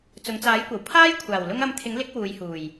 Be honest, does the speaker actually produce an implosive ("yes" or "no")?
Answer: no